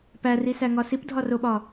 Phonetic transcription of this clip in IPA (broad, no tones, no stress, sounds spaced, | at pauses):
p æ r i s æ ŋ ɒ s i p dʱ ɒ r o ɓ ɒ